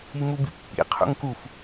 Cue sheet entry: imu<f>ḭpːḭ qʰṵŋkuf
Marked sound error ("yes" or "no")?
yes